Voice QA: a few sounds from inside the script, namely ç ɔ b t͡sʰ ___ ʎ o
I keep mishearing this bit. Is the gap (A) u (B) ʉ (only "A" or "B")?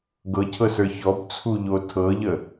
A